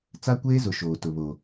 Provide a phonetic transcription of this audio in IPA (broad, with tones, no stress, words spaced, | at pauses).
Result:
t͡sa˦kʷeː˦zʊ˨ ʃoː˨tʊ˨βo˨